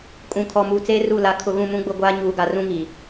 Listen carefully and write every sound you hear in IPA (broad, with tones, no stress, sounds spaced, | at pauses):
kʼ ũ˨ kʰ ɔ˨ m uː˨ t͡s eː˦ r u˦˨ l a˨ kʰ ʊ˨ ɣ ũ˨ m ũ˨˦ ɡ͡b ʊ˦ ɡʷ aː˦ ɲ uː˨ ɡ a˨ r ũ˦ ŋ i˨